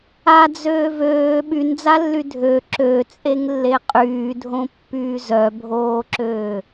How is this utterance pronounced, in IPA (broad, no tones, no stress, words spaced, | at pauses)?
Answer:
ad͡zøːv øː ɓynd͡zalːy dʱø ǁøt͡sʼeŋlːe qʼyːdʱõpːyː zœbʱoːǁøː